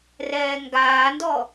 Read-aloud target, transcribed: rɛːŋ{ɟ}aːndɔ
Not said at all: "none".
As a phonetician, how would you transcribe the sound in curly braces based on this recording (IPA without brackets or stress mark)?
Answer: ɡ